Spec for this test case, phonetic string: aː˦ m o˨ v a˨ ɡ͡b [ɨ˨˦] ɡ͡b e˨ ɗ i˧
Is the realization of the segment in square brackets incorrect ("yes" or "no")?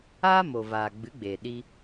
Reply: no